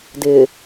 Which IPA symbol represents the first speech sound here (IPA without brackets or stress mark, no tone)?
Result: d